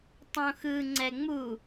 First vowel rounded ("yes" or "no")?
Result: yes